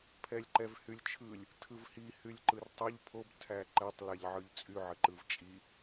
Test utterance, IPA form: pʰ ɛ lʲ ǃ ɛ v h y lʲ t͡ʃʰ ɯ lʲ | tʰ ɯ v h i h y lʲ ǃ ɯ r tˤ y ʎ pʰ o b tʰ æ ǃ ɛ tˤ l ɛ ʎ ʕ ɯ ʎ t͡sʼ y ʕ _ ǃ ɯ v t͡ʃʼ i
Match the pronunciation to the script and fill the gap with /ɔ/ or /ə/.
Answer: ə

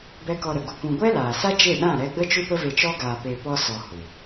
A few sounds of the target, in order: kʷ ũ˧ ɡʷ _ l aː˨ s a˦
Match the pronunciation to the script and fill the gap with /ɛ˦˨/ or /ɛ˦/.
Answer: ɛ˦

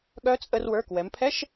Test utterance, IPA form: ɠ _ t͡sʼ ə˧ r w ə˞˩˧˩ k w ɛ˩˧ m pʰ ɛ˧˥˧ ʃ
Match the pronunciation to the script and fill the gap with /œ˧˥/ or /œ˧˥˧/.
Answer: œ˧˥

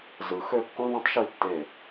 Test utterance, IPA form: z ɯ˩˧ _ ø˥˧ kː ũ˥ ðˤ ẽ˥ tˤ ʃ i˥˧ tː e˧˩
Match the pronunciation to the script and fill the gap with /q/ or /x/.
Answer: x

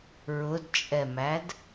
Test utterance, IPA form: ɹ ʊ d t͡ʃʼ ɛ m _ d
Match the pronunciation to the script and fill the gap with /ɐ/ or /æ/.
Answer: æ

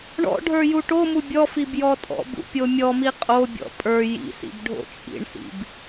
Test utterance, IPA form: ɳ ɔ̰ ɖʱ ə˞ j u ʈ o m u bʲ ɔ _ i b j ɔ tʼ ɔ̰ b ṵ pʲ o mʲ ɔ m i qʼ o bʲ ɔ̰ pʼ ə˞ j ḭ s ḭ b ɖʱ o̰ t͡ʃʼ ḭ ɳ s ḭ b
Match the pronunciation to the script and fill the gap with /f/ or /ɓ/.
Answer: f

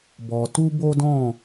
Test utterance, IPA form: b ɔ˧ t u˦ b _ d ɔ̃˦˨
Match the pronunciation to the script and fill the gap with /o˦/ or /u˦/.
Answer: o˦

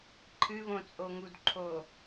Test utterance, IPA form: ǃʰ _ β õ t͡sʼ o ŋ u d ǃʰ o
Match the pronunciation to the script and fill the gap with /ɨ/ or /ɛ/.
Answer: ɨ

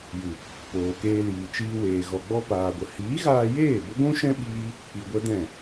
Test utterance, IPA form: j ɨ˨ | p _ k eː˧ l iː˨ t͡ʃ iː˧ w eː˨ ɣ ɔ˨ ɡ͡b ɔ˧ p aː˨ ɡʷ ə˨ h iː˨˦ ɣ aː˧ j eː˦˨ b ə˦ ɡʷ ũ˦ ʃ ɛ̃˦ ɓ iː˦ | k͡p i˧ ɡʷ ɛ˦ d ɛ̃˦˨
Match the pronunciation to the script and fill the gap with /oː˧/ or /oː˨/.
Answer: oː˨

